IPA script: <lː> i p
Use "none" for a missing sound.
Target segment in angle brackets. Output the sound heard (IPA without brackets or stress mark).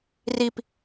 r